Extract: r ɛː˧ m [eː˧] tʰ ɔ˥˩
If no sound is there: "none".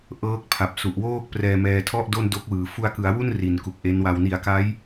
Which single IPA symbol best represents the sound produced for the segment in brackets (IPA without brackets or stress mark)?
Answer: ɛː˧